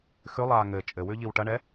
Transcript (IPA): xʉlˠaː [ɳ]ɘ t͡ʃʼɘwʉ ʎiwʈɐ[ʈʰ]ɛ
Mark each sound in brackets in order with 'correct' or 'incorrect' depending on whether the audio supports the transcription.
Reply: incorrect: ŋ, incorrect: ɳ

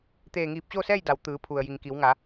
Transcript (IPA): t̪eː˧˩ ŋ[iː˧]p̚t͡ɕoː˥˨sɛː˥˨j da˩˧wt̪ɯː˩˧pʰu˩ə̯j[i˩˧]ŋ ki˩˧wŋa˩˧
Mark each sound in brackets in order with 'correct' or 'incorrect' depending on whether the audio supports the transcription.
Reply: incorrect: iː˧˩, incorrect: i˩

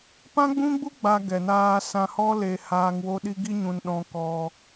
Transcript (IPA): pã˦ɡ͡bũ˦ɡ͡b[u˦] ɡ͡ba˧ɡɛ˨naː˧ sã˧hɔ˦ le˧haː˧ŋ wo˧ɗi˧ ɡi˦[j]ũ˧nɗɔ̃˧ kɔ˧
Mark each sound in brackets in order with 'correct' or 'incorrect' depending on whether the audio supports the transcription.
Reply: correct, incorrect: ɲ

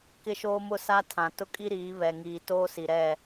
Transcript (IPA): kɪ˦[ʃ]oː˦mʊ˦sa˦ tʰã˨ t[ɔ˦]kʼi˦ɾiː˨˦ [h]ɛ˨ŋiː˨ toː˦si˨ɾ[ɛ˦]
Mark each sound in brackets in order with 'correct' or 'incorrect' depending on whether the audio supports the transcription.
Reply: correct, incorrect: ʊ˦, incorrect: β, incorrect: ɛ˦˨

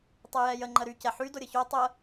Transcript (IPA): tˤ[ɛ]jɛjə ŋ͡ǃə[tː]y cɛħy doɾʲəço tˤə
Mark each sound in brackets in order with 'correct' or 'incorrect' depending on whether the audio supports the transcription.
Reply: correct, incorrect: ɾ

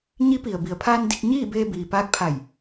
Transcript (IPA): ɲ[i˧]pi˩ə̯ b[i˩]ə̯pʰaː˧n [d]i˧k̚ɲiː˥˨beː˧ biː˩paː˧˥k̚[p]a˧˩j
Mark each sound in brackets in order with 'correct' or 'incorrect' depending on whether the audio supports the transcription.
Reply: incorrect: i˧˥, correct, correct, incorrect: pʰ

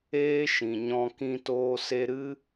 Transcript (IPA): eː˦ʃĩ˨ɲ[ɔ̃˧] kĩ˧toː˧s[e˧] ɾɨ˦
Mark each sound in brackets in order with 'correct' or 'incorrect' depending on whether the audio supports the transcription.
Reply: correct, correct

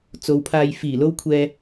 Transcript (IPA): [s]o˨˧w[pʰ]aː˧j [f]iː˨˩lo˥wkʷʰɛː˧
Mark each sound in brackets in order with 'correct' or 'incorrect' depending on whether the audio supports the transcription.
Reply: incorrect: t͡s, correct, correct

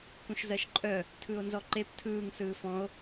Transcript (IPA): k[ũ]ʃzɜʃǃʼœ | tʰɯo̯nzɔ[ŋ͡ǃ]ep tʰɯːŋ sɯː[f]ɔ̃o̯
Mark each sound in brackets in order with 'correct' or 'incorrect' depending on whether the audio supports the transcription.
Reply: correct, incorrect: ǃ, correct

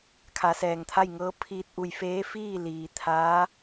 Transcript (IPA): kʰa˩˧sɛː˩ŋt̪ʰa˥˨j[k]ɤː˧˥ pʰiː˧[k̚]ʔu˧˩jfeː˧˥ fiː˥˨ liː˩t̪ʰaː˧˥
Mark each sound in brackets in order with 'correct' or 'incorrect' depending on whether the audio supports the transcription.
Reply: incorrect: ŋ, incorrect: t̚

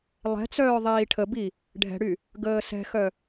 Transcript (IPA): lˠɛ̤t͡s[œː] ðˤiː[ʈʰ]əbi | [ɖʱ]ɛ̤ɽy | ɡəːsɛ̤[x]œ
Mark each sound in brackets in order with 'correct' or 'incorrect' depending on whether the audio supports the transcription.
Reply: correct, correct, correct, correct

